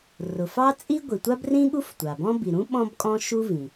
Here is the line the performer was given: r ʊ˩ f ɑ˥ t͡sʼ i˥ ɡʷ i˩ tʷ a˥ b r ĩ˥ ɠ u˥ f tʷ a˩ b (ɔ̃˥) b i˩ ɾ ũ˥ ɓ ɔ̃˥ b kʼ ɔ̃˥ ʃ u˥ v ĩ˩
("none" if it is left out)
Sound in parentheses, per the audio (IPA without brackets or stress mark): ɔ̃˥